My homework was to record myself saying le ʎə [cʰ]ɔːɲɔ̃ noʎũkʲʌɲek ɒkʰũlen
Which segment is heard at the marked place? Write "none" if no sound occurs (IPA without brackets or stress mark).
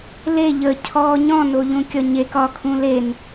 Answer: cʰ